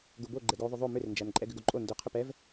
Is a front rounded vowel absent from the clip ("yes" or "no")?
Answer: no